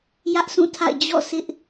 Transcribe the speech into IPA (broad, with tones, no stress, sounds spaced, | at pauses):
j ä˦ ʔ s ũ˦˨ tʰ a̰˦˨ ɪ̯ d͡ʑ ɔ̰˦˨ sʰ ɪ˦ ʔ